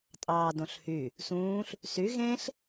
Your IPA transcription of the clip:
tʼ ɑː d õ ɬ h y | s ũː ɬ | s y ɣ ẽ ɬ

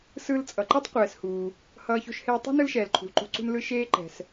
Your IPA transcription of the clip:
s ɯ˧ l t͡sʼ ʌ˩ ǃ i˥ tˤ qʷ ɛː˩ s h uː˩ | h ʌː˧ ç o̤˧ ʃ h eː˧ tˤ ṳ˥ n ɯ˥ l ʃ ɛː˩ l ǃʰ ṳ˩ l ǃ o̤˧ ǀ ṳ˧ n l ɯ˧ ʃ eː˧ ǃ ɛ̤˩ s

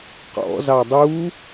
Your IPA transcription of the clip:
q ɔ̰ z ɑ dˤ u

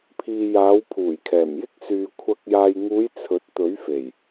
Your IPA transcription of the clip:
pʰ iː˨ j aː˨˧ w pʰ uː˨˩ j kʰ ɛː˨˩ m j ɪ˥ k̚ s yː˨ kʷʰ ɐ˨ k̚ j aː˨ j ŋ uː˨˧ j t͡sʰ ɵ˨˥ t̚ t̪ ɵ˨˥ ɥ f e˨˩ j

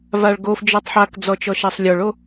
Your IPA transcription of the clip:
v a ɭ ɡ o f d͡ʒ ɔ tˤ ħ a k d͡z ɔ t͡ʃ ɔ ʃ a sˤ lʲ ɔ ɭ o

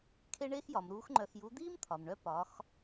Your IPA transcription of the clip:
kʰ e˥ ɳ eː˥ x j ɒ˩˧ m ɾ uː˧˥ x ŋ͡ǃ œ˧ x j u˧˥ d̪ iː˥ m t̪ʰ ɒ˩ m ɳ œ˧ p ɒ˩˧ x

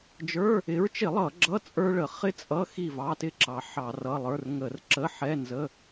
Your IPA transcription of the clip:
d͡ʒ ə˞˧˥˧ | ɪ˨˦ ɹ t͡ʃ ɪ˧˩˧ lˠ ʌ˧˩˧ ɡ͡ǁ ʌ˧˥˧ t͡sʼ ə˞˥ ɭ ə˧˩˧ χ ɪ˥ t͡sʼ ʌ˧˥˧ x i˥˨ v ɑ˧˥˧ t ɪ˥ ǁ ɑ˨˦ ħ ɑ˧˩˧ r ʌ˧˥˧ lˠ ə˞˧˥˧ r ŋ ə˧˩˧ r ǁ ə˧˥˧ ħ ɛ˧˥˧ n z ə˧˥˧

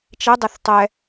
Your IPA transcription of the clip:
t͡ʃ ɛ dˤ ɛ θ tˤ ɛ

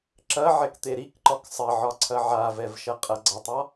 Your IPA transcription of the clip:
ǁ ɐ ʕ ɛ k t̪ e ɾ i k ǃ ɒ k sˤ ɐ ʕ ɒ ǀʰ ɐ ʕ a v ɛ v ʃ ɐ qʼ ɐ ɡ͡ǀ ɐ tˤ ɒ

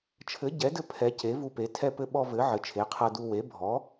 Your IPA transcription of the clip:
t͡ʃʰ ɘ˨˥ ɟ ɛ˨˥ d ɘ˦ pʰ ɛ˨˥ c e˨˥ v u˦ p e˨˥ tʰ ɛ˦ p ɘ˦ ɓ ɔ˦ v ɘ˨˥ ʕ ɘ˨˥ t͡ʃʰ e˨˥ qʰ ɤ˦ d u˦ w e˨˥ bʱ ɔ˨˥

